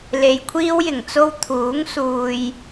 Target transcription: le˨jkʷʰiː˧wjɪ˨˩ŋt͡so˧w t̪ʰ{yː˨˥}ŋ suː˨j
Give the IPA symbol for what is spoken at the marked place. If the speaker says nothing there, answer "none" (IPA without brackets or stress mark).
uː˨˥